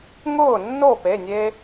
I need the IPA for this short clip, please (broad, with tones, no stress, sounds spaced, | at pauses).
ŋ ʊː˥˩ nː o˥˩ p e˩˧˩ nʲ e˧